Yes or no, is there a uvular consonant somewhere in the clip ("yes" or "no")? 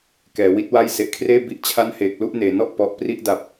no